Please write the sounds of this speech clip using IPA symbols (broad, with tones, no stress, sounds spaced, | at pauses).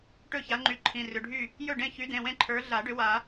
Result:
ʈ ɵ˥˩ ç a˨˦ ŋ͡ǃ y˨˦ ǃʰ ĩ˩˧˩ r ʏ˩˧˩ ɖʱ y˥˩ | j ɵ˥˩ ɖ ẽ˥˩ ç y˨˦ d ẽ˩˧˩ w ẽ˥˩ ǃʰ ə˞˨˦ ɮ a˨˩˦ ɖ ʏ˨˦ w a˨˩˦